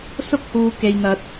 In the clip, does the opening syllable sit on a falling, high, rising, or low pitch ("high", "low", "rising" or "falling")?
high